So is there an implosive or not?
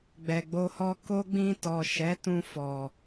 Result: no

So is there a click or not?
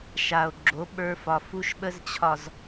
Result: yes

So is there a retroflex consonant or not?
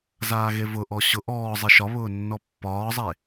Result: no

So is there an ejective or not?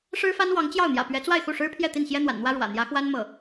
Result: no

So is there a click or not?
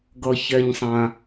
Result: no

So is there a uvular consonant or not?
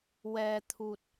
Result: no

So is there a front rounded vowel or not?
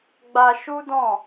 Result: no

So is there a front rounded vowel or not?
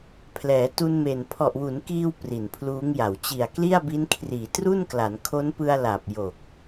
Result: no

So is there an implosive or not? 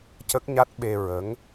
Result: yes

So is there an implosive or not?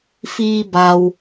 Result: no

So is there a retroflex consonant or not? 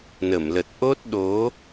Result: no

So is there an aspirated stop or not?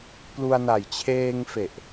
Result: yes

